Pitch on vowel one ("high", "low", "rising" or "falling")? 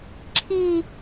falling